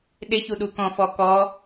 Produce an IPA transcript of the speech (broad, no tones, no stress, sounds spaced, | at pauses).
ɗ ɪ ç u ɗ u k ɔ̃ f ɔ k ɔ